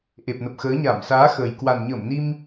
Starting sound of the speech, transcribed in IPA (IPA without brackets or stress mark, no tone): ʔ